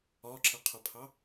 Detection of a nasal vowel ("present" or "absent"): absent